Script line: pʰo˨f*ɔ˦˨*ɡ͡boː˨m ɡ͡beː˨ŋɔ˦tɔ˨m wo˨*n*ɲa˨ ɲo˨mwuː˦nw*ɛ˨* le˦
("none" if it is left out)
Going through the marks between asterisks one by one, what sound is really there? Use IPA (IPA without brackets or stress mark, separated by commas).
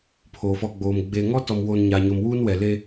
ɔ˨, n, ɛ˨